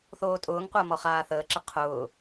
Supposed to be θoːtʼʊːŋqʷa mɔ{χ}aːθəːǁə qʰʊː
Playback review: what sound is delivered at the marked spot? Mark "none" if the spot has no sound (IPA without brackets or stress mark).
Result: χ